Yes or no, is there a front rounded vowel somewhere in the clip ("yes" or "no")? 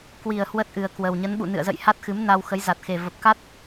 no